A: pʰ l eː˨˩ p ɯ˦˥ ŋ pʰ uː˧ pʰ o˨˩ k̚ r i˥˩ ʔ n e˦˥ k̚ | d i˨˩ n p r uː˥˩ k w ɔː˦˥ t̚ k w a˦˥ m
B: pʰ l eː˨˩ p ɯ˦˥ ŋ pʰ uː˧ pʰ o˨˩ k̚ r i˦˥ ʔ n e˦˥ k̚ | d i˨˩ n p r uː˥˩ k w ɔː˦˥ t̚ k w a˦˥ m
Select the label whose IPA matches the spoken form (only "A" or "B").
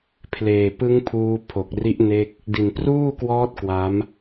B